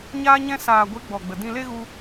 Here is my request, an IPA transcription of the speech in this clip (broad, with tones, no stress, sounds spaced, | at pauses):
ɲ aː˧ ɲ ɛ̃˧ s aː˨ ɡʷ e˨˦ ɡ͡b ɔ˨ ɡ͡b ə˨ d ĩ˧ l e˦ ɣ u˦